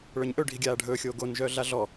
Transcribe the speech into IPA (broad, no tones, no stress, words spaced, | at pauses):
ɭœɲʔɵ ɖʱiɡʲaːɖʱɵːxʲoː ɡonʒœː ɮaɮɔ